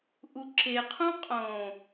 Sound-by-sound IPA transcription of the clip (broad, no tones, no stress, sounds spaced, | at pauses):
ʔ u ǁ e qʰ ũ qʼ õ